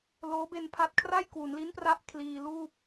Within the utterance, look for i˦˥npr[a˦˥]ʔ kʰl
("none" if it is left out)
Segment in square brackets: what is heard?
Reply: a˦˥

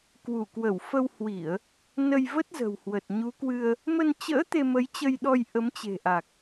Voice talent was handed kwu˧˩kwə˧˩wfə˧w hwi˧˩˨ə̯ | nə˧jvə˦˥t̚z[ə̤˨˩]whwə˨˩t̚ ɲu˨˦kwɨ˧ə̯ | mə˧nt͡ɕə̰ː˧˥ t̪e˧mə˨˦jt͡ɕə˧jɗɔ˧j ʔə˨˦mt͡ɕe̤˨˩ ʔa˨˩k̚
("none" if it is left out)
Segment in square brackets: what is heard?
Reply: ə̤˨˩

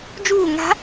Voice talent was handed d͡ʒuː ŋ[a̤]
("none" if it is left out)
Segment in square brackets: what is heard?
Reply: a̤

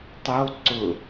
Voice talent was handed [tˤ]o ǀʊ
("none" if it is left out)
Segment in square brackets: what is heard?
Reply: tˤ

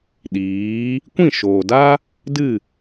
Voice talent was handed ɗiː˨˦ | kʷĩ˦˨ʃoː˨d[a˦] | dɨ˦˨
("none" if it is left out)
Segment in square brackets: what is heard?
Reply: a˦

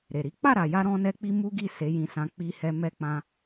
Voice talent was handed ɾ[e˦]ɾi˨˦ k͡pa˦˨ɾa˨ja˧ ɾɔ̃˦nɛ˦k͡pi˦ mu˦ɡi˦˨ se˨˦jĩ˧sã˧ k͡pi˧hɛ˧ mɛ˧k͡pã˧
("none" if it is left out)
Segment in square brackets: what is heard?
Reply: e˨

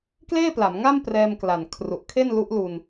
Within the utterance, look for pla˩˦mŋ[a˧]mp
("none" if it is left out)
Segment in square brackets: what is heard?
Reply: a˥˩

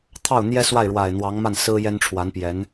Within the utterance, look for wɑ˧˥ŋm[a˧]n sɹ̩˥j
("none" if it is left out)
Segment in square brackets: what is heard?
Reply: a˥˩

